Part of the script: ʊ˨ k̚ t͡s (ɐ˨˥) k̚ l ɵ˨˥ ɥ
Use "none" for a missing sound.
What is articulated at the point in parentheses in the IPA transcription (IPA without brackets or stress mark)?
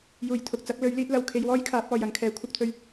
ɐ˨˥